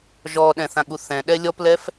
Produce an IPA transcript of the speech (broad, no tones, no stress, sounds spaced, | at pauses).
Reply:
ʒ ɔ ɗ ɛ̃ θ ã ɠ u θ ɛ̃ ɗ ɛ lʲ ɔ p l ɛ f